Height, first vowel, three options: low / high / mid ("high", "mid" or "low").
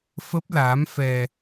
mid